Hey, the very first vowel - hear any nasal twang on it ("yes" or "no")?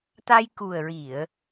no